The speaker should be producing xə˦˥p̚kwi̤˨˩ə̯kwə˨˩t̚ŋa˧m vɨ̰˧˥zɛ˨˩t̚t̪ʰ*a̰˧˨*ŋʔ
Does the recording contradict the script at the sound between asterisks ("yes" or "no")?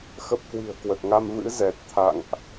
no